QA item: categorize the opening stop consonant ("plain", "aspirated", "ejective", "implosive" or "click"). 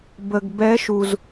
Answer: plain